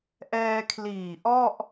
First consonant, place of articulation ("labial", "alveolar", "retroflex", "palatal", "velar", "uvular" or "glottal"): glottal